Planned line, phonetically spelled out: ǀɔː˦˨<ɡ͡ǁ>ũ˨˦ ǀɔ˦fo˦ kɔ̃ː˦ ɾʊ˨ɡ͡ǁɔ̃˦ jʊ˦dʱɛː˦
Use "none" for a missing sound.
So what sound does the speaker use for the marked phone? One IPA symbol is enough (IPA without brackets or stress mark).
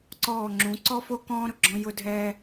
ŋ͡ǁ